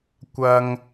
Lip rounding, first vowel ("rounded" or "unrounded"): unrounded